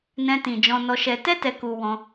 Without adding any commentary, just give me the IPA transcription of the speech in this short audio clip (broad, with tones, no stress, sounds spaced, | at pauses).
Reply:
n ɛ̃˧ t ĩ˨ d͡ʒ ɔ̃˧ n ɔ˧ ʃ ɛ˧ t ɛ˦ t ɛ˧ k u˧ w ɔ̃˧